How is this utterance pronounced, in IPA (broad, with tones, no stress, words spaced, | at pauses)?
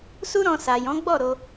su˦ɾɔ̃˧ sa˨jɔ̃˨˦ɡ͡bɔ˦˨ɾo˧